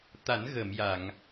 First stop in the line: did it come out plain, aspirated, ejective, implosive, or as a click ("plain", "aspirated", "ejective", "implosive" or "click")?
plain